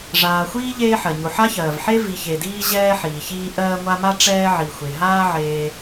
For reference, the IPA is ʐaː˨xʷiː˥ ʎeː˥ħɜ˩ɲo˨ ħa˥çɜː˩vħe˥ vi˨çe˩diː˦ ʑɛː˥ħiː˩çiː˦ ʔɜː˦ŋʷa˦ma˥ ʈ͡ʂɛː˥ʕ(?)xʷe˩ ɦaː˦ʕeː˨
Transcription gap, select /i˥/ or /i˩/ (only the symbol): i˩